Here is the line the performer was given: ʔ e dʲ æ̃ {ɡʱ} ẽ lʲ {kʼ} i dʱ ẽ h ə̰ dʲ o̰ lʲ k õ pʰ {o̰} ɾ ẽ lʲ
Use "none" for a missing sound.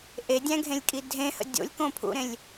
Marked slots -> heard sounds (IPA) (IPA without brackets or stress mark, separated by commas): ɡʱ, kʼ, ṵ